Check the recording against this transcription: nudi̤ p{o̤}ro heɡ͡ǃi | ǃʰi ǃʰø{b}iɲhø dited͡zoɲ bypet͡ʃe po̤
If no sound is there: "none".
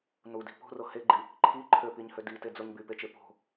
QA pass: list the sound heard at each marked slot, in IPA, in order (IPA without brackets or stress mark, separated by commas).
o̤, p